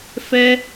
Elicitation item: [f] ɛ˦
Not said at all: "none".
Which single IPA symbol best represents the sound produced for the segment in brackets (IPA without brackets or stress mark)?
f